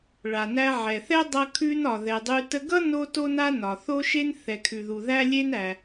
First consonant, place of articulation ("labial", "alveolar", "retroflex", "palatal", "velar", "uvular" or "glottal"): retroflex